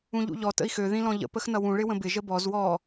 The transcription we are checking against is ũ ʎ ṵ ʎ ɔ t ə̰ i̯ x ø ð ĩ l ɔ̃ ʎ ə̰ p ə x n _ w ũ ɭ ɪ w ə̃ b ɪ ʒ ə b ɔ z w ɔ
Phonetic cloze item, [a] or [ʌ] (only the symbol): ʌ